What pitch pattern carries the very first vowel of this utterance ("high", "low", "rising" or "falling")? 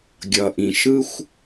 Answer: low